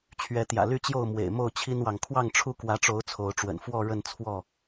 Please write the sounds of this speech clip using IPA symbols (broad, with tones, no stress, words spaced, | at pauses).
t͡ɕʰɥɛ˨˦t̪jä̰˨˩ly˦t͡ɕjo˥˨ʊ̯ mwḛ˨˩ɪ̯mo˥˨ʊ̯ t͡ɕʰi˦nwɑ˨ŋ kʰwɑ˥˨ŋʈ͡ʂʰu˦kwä˨˦ʈ͡ʂo˨˦ʊ̯ t͡sʰo˨˦ʊ̯ʈ͡ʂwə̰˨˩n fwɔ˥˨ɻə˥˨nt͡sʰwɔ˥˨